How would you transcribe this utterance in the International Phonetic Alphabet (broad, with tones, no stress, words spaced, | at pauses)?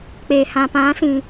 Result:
k͡pe˨ hã˨pã˨˦sĩ˨